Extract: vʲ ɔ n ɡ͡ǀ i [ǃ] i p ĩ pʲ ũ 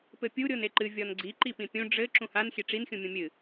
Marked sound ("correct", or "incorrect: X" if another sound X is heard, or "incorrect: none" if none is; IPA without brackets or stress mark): correct